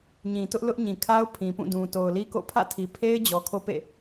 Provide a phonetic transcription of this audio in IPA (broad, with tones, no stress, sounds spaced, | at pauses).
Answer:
ɲ ĩ˨ t ʊ˦ ʔ l ʊ˦ ʔ ɲ ĩ˨ kʰ a˦ ʊ̯ pʰ ĩ˨ p ũ˦˨ d ũ˨ t o˨ ʊ̯ l i˦ k o̰˦˨ pʰ ä̰˦˨ tʰ i˨ pʰ e˦ ɪ̯ d͡ʑ ɔ˨ kʰ o˦ p ḛ˦˨